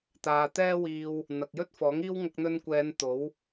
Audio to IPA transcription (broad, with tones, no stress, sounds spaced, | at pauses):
t̪ aː˨ t̪ ɛː˥ w iː˧ w | n̪ ɐ˨ k̚ j ɵ˥ t̚ f ɔː˨˥ ŋ iː˥ w ŋ ɐ˧ k̚ n̪ ɵ˧ n kʷ ɛː˨˧ n t̪ o˨˥ w